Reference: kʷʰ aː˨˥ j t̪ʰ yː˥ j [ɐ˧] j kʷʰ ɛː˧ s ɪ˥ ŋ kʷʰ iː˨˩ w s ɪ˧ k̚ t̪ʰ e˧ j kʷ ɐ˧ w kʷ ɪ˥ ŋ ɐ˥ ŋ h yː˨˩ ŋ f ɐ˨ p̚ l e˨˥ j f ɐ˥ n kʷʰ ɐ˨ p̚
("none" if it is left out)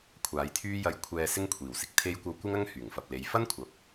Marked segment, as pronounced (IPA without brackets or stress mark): ɐ˧